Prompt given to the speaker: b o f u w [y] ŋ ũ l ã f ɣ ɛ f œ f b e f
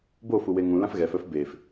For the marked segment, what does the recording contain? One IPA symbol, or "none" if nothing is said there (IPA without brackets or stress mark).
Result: e